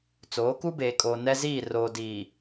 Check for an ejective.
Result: present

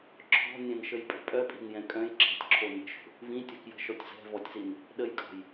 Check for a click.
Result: present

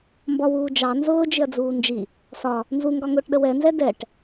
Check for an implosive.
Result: present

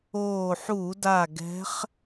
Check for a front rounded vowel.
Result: absent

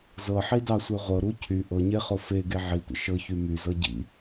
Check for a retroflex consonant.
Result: absent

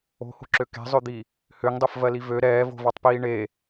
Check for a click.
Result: present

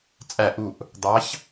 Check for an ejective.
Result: present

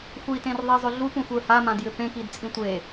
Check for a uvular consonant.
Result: absent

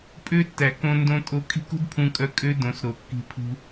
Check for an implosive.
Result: absent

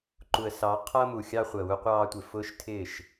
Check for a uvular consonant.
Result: present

